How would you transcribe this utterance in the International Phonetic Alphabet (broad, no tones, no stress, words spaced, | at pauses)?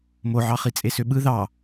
moʕɑχi t͡sʼesøɓɯ ðɑ